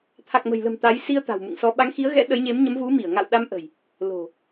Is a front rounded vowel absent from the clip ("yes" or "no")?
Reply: yes